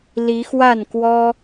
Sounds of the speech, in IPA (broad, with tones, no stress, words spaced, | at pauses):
li˨˦xwa˥˨nkwɔ˦